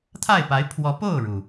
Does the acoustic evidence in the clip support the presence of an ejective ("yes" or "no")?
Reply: no